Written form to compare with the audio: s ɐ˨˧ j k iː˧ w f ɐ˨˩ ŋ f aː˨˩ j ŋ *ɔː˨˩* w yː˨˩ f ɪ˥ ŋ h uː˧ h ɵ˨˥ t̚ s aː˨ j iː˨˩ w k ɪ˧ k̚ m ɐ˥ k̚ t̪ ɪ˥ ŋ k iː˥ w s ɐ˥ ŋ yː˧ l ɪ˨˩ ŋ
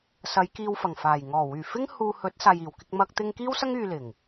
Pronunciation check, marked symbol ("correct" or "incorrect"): correct